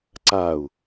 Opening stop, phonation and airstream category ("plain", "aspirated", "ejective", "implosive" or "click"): click